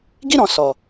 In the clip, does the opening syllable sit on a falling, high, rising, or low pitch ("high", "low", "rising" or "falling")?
high